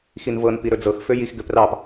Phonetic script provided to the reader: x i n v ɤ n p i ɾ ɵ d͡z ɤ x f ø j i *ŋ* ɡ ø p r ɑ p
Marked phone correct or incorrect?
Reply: incorrect